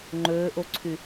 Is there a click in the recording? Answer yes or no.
yes